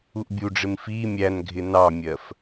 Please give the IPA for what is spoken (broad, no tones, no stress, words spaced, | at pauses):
uʔbʲuɖ͡ʐɪm fi mʲæn ɡʱɪnɑmʲɜf